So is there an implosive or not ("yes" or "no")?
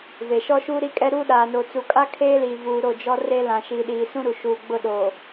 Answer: yes